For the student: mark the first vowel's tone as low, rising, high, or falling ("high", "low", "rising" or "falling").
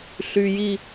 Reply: low